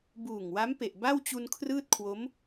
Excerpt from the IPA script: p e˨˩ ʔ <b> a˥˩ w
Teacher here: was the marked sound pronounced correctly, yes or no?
yes